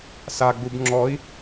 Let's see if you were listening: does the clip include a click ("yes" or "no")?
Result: yes